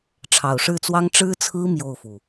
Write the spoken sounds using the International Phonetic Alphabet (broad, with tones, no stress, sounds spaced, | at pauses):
ʈ͡ʂʰ ɑ˨˩ ʊ̯ ʂ ɻ̩˥˩ t͡s w ɑ˥ ŋ ʈ͡ʂ ɻ̩˥ t͡sʰ ɹ̩˥ m j o˥˩ ʊ̯ f u˩